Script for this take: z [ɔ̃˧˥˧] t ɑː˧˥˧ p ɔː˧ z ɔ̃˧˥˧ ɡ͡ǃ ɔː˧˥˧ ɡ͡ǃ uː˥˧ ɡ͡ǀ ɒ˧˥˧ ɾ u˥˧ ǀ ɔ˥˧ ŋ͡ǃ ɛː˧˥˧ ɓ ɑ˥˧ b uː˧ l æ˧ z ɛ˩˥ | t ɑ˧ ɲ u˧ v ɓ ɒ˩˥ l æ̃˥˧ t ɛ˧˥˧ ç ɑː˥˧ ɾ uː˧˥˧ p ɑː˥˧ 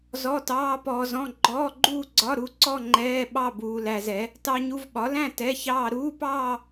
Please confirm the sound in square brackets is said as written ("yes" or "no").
no